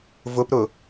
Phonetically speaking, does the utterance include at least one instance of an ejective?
no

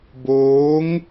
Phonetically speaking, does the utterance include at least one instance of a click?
no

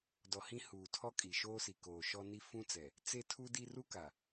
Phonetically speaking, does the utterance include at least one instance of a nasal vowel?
yes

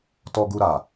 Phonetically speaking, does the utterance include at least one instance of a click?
no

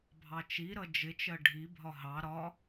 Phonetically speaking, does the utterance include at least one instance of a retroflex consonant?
yes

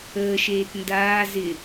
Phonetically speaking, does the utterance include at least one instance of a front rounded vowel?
no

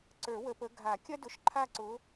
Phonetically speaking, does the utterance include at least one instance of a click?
yes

